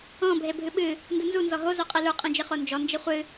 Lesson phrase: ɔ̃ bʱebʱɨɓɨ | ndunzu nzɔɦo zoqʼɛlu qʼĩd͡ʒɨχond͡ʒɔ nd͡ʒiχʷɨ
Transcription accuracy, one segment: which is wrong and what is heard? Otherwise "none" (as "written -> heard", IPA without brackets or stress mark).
none